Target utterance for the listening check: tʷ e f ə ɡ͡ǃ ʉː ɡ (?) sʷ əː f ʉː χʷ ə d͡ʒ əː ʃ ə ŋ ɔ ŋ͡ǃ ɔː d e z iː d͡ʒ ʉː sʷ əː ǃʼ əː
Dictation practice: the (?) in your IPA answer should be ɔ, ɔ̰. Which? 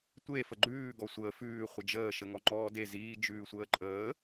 ɔ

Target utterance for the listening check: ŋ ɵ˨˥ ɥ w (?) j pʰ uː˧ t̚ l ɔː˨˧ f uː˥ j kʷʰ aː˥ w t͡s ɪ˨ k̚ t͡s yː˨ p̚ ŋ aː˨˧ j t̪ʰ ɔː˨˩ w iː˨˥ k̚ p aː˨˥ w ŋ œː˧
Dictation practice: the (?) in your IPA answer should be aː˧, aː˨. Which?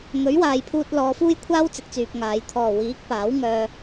aː˨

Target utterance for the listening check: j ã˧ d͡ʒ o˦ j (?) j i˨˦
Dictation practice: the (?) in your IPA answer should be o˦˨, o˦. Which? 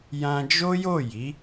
o˦˨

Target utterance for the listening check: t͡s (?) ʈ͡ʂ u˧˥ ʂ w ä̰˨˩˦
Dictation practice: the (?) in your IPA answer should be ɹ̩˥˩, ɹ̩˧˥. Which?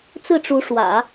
ɹ̩˥˩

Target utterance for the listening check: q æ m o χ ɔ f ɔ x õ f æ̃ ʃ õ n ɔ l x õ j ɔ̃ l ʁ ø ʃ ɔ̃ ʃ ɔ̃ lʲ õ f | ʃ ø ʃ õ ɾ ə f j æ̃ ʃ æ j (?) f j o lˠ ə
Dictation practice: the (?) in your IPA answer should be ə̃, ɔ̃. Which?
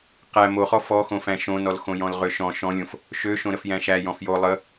ɔ̃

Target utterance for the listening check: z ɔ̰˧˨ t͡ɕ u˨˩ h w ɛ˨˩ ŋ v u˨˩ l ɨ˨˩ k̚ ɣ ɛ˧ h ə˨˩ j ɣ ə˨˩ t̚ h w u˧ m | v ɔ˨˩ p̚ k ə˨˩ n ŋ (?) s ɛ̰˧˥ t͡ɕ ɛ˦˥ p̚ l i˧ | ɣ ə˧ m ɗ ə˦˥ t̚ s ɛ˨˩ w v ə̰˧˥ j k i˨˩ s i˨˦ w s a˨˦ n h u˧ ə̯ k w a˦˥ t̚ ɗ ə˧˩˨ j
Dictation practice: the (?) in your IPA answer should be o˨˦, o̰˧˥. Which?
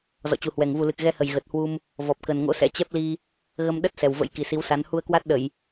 o̰˧˥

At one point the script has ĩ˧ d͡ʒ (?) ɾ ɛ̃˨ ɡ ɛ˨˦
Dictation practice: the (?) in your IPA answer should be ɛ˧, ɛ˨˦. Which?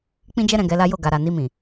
ɛ˧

